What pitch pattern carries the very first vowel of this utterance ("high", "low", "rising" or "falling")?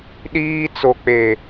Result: high